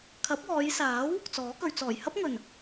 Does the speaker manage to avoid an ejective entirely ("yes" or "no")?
yes